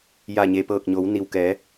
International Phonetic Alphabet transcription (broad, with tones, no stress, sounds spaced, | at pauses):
j a˧˩ ɲ e˩ p ɤː˧˩ k̚ ɲ o˩˧ w n i˩ w k ɛː˩˧